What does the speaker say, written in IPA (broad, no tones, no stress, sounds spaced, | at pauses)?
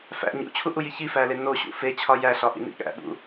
f æ̰ ɲ ṵ t͡ɕʰ u ʔ u j i ç i f æ l e n o ɕ ṵ f e t͡ɕʰ ɒ j æ ɬ ɒ ʔ ḭ n ḭ ɠ æ̰ ɓ ṵ